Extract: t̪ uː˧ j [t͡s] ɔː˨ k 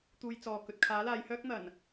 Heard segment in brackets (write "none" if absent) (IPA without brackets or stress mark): t͡s